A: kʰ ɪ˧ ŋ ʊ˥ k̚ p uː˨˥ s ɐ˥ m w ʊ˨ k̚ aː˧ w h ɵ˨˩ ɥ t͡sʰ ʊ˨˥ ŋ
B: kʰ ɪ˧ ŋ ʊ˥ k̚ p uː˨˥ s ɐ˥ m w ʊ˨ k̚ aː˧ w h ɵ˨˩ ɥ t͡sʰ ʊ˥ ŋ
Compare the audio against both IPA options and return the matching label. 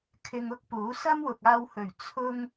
B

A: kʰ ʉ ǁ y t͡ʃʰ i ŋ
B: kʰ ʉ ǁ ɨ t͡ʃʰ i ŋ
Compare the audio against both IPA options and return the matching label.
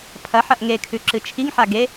B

